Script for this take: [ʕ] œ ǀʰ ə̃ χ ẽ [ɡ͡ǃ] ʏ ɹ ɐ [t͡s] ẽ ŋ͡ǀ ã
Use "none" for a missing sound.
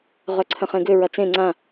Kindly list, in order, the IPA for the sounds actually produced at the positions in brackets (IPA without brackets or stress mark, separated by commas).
ʁ, ɡ, t͡s